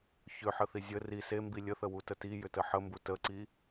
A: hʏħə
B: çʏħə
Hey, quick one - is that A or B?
B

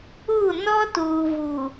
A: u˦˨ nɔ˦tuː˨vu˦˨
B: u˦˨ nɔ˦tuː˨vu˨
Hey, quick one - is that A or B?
B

